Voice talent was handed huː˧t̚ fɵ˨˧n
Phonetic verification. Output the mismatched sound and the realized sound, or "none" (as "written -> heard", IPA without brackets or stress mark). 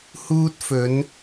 none